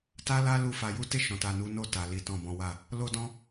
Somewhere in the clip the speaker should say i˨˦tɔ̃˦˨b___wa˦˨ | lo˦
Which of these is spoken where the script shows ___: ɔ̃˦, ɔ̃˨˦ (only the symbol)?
ɔ̃˨˦